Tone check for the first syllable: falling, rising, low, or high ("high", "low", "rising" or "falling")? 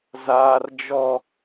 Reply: high